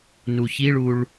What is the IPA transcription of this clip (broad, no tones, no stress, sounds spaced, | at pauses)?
n u ç i ɭ u ɭ